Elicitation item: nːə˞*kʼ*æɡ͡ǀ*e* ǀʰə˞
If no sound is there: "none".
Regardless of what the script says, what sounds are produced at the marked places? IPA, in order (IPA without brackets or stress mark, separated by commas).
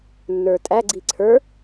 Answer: tʼ, i